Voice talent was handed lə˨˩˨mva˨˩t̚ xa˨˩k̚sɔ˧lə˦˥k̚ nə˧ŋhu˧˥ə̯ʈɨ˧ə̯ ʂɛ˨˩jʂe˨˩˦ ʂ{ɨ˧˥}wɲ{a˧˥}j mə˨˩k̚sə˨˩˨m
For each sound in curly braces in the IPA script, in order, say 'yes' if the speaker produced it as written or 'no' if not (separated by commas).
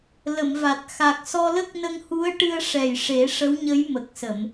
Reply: no, no